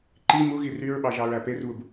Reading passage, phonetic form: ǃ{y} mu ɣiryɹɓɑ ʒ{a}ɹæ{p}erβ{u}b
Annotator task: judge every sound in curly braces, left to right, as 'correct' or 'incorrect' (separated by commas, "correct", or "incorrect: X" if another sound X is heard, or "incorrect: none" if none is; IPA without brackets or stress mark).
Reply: incorrect: i, incorrect: ɑ, correct, correct